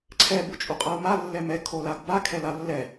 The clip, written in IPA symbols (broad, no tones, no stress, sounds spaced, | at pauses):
ǀʰ ɛ b u t͡ʃʼ u qʼ a u̯ m a lː ɛ m ɛ kʰ o l a ɡ b a kʰ ɛ l a lː ɛ